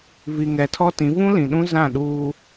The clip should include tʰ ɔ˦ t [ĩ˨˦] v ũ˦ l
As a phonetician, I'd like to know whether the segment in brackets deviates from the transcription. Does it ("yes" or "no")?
no